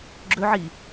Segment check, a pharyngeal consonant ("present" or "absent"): present